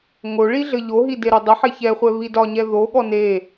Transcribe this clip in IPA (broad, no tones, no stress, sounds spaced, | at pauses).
ŋ o ɭ i ɮ ɘ ʎ o ɦ i d e ɾ o dˤ ə ħ e ç ɛ χʷ ɛ β i d ɒ ɲ ɛ ð o ɠ ɔ n e